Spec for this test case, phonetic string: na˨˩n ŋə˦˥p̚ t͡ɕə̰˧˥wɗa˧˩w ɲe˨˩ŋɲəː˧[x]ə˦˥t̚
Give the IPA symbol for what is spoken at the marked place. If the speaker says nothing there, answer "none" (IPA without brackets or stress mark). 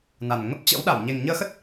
x